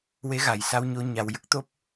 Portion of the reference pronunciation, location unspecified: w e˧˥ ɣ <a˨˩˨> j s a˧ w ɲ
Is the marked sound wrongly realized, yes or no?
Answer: no